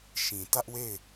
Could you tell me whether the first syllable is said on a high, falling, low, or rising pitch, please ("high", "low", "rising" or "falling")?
low